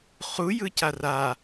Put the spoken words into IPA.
χu jɯcara

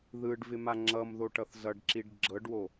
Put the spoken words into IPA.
ðɯɖvɪ maŋ͡ǁʌmðo ʈʌθzʌɖǁiɖ ɡ͡ǁɤɖwo

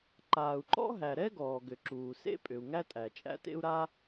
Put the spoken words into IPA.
ǃaː˩u̯ǃɔ̰˥ɦæ˩ ɾɛ˥ɡɔː˩ɡʏ˩ ǁuː˩sḛ˥pʼʏ˩u̯ ŋæ˥tʼæ˩t͡ʃʼæ̰˥tḛ˥u̯ ɾa˥

